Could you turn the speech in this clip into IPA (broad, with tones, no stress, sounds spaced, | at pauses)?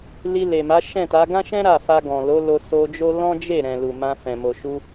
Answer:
l i˧ l e˨ m a˨˦ ʃ ɛ̃˦˨ t a˨˦ ɡ ã˦ ʃ ɛ̃˦ ɾ a˦˨ f a˧ ɡ ɔ̃˨ l o˨˦ l o˧ s o˧ d͡ʒ o˦ l ɔ̃˦ d͡ʒ e˦˨ ɾ ɛ̃˨ l u˨ m ã˧ f ɛ̃˨ m o˨ ʃ u˧